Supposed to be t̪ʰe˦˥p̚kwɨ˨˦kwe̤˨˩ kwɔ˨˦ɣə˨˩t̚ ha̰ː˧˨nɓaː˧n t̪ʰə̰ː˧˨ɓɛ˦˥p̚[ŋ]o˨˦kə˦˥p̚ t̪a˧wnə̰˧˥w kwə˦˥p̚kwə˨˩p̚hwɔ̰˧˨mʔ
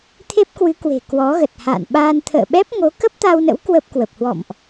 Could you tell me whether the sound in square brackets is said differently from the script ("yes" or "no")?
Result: no